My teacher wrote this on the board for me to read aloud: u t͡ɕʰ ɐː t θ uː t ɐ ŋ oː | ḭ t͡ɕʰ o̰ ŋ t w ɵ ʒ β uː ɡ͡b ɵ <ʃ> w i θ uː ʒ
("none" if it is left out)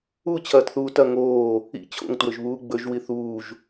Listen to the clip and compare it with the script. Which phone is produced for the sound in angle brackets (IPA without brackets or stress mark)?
ʒ